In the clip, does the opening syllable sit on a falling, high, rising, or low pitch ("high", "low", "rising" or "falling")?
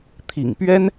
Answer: low